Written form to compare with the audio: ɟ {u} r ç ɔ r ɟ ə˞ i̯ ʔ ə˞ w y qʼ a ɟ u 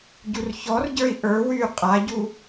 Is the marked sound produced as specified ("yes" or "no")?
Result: yes